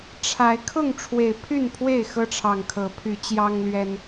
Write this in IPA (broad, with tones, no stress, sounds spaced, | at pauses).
ʈ͡ʂʰ a˨˦ ɪ̯ kʰ ʊ˥˨ ŋ ʈ͡ʂʰ w e˨˩ ɪ̯ pʰ y˥˨ n pʰ w e˥˨ ɪ̯ x ɤ˦ ʈ͡ʂʰ ɑ˨˩ ŋ kʰ ɤ˨˦ pʰ y˨˦ t͡ɕ j ɑ˦ ŋ l ɥ ɛ˦ n